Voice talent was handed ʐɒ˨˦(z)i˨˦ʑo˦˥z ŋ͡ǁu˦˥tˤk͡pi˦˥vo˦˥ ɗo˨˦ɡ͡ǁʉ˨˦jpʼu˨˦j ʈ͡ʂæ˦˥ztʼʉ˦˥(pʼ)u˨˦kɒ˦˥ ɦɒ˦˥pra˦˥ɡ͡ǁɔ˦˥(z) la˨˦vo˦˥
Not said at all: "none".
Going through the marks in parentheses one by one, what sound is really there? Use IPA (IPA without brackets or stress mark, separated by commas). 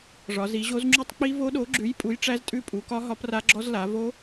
z, pʼ, z